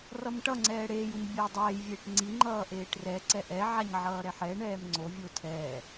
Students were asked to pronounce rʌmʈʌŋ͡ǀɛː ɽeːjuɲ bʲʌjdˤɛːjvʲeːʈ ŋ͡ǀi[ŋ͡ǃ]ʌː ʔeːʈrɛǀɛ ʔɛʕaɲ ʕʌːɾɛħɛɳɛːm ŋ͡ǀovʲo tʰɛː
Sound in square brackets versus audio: correct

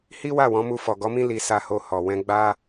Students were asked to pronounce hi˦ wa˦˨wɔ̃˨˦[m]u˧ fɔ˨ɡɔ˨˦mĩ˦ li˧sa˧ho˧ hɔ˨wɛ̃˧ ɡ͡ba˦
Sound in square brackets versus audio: correct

